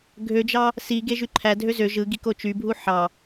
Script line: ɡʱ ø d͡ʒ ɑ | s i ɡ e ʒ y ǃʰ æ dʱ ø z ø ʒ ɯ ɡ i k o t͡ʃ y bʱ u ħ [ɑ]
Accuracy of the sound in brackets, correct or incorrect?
correct